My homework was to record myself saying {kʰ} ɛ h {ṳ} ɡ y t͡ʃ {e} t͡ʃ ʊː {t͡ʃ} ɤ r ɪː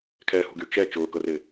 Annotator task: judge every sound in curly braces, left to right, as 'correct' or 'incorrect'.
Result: correct, correct, incorrect: ɛ, incorrect: k

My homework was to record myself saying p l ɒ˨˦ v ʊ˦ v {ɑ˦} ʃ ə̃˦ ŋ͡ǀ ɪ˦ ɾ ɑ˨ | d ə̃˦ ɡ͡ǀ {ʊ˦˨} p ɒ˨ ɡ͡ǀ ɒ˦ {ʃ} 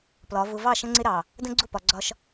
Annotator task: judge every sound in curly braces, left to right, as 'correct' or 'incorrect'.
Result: incorrect: ɑ˦˨, correct, correct

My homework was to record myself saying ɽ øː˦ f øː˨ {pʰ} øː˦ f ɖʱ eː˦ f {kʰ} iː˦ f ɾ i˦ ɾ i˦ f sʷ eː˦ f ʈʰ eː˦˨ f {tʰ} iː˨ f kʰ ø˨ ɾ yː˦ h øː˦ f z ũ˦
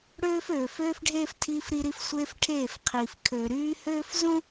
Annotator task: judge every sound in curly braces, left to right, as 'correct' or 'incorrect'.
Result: incorrect: f, incorrect: tʰ, incorrect: qʰ

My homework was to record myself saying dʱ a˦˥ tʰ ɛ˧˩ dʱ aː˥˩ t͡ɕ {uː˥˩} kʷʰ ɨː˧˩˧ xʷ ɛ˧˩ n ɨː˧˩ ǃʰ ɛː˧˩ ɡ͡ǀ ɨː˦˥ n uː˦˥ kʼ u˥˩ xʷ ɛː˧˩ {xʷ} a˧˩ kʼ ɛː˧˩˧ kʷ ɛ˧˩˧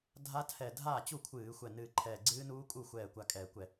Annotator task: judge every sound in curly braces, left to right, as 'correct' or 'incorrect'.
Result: incorrect: u˥˩, incorrect: kʷ

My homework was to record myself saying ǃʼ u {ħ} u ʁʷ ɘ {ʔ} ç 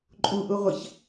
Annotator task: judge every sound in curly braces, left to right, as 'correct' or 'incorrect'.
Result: incorrect: ʔ, incorrect: none

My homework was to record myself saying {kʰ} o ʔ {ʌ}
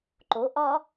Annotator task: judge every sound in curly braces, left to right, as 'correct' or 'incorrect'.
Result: incorrect: ǃ, incorrect: ɒ

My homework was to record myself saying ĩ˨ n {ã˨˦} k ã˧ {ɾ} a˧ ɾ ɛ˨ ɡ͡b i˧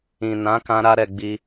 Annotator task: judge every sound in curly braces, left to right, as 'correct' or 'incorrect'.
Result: correct, correct

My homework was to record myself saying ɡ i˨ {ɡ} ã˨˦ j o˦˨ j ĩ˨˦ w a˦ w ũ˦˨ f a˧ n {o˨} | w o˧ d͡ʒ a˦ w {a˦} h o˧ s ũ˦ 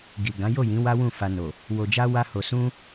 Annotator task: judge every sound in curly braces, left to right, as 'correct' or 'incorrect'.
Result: correct, correct, correct

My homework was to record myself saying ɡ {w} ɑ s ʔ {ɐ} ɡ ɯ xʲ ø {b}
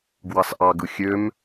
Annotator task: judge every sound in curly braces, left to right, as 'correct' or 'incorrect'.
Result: correct, incorrect: ɑ, incorrect: m

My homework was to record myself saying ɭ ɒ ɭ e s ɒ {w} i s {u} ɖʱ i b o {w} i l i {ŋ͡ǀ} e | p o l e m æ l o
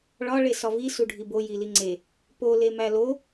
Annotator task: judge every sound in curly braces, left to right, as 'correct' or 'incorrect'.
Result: incorrect: v, correct, incorrect: j, correct

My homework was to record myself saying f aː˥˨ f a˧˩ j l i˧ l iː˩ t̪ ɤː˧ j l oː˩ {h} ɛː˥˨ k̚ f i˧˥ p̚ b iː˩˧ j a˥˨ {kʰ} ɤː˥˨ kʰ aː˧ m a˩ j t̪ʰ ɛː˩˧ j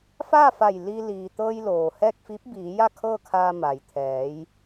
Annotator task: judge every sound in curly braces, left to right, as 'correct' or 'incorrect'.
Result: correct, correct

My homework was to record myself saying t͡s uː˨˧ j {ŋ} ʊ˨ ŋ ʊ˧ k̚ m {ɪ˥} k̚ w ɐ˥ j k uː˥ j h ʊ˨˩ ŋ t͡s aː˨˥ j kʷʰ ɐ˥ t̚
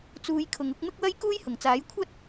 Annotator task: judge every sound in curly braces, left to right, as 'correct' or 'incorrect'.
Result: incorrect: kʰ, correct

